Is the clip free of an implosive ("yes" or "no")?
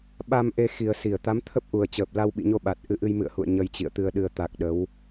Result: no